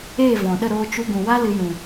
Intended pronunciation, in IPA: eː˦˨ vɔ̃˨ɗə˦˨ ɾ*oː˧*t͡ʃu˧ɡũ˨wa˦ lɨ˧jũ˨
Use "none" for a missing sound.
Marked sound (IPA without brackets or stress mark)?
oː˧